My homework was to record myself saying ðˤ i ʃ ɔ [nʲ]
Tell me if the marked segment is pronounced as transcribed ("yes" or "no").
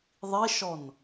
no